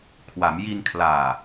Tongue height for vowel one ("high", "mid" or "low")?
low